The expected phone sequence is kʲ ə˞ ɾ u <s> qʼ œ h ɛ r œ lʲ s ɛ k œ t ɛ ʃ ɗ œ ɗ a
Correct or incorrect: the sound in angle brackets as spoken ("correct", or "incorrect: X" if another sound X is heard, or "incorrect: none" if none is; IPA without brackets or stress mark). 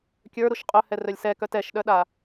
incorrect: ʃ